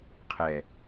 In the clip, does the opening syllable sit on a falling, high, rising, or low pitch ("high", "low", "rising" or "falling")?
low